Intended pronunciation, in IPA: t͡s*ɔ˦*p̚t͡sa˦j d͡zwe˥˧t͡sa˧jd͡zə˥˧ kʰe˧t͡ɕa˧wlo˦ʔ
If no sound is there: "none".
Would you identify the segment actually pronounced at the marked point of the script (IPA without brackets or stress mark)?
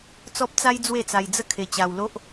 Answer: ɔ˦